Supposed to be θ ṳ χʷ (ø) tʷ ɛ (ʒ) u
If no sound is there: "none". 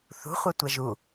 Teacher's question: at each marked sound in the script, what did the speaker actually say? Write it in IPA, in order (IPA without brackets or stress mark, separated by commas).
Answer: ɛ, ʒ